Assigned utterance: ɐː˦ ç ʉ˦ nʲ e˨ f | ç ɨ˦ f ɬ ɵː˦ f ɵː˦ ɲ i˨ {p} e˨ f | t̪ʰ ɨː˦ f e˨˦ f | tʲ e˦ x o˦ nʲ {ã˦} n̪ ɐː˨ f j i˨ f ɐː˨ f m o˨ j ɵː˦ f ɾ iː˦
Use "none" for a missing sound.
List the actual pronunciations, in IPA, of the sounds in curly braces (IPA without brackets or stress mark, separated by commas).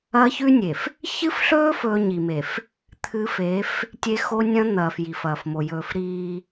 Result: m, ɐ̃˦